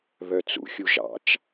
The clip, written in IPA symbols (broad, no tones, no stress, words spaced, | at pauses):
βœt͡sṵ xʲuʒɑ̰t͡ʃ